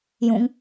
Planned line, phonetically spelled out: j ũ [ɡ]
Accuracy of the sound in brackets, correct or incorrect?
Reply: incorrect